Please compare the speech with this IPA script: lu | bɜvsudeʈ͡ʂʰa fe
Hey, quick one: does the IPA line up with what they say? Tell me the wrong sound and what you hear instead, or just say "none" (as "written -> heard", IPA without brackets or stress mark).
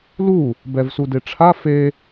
ɜ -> ɛ